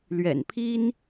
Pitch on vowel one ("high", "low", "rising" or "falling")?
low